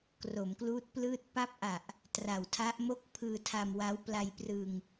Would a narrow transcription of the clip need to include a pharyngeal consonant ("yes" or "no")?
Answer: no